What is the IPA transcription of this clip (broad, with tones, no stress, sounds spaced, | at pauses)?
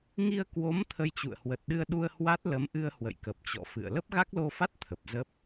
ŋ i˧ ə̯ k w o˨˦ m t̪ʰ ə˧ j t͡ɕ ṵ˧˨ ə̯ h w ə˨˩ t̚ ɗ ɨ˧ ə̯ ɗ u˧ ə̯ h w a˦˥ t̚ l ə˨˦ m ʔ ɨ˧ ə̯ h w ə̰˧˨ j k ə˨˩ p̚ t͡ɕ ɔ̰˧˨ f ɨ̰˧˨ ə̯ l ə˦˥ p̚ ɣ a˦˥ k̚ l o˧ f a˦˥ t̚ t̪ʰ ə˨˩ p̚ z ə˦˥ p̚